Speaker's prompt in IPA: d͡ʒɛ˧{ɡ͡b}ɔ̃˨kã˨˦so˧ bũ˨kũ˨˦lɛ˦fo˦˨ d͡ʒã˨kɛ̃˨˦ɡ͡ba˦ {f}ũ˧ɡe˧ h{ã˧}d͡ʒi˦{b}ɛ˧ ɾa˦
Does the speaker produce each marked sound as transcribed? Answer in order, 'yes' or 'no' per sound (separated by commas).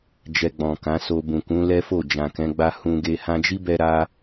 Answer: yes, no, yes, yes